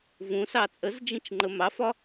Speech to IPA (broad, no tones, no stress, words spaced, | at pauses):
vũsɑ t͡sʼəzd͡ʒĩt͡ʃŋ͡ǃə mɑfɒ